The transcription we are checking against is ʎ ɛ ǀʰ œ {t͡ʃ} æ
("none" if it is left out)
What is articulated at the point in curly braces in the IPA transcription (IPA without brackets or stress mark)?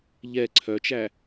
t͡ʃ